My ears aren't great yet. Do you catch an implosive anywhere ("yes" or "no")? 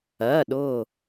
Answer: yes